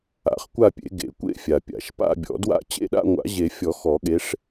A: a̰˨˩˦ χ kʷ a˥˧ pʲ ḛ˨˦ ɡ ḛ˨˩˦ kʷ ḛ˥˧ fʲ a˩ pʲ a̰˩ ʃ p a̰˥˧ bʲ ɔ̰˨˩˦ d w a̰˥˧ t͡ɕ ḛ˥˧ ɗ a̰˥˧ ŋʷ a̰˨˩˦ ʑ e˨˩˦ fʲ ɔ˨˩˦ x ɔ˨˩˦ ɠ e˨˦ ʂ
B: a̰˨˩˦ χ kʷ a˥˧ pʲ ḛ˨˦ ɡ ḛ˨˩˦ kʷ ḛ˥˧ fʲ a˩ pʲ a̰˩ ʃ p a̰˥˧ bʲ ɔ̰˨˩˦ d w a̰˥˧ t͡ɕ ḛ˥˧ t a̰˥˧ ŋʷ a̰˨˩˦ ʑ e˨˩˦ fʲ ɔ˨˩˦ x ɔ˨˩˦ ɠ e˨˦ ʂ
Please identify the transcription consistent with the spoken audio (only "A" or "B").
A